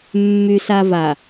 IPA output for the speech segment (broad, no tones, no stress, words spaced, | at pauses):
mːysava